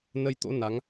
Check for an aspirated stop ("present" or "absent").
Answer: absent